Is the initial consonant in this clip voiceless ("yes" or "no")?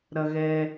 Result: no